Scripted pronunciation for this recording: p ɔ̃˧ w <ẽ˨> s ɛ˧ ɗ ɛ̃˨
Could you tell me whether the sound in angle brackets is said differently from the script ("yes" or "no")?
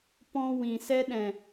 yes